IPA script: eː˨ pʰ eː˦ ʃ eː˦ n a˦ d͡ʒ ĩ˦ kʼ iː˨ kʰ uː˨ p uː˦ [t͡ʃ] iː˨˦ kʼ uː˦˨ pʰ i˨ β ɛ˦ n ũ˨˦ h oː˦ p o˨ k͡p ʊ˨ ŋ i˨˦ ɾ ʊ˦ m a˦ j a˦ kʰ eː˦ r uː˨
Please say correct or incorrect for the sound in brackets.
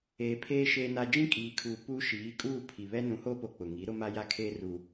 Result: incorrect